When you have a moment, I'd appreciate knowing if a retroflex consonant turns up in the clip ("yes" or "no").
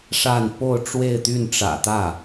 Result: yes